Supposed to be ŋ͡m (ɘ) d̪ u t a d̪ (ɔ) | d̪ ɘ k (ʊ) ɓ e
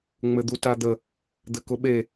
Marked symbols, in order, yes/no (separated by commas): yes, no, yes